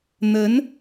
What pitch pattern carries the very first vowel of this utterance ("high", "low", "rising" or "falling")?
rising